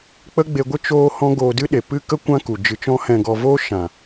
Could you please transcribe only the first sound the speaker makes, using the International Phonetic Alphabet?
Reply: k͡p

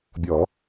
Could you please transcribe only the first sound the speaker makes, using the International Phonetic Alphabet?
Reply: bʲ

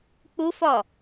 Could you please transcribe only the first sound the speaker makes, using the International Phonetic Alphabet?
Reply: k͡p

